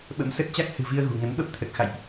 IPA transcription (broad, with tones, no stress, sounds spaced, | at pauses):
ɓ ə̰˧˥ m s ə˦˥ t̚ t͡ɕ a˦˥ k̚ h ɨ̤˨˩ v i˧ ə̯ ɣ ṳ˨˩ ŋ ə˨˦ n ɓ ə˦˥ p̚ t̪ʰ ə˨˩ t̚ x a̰˧˨ j ʔ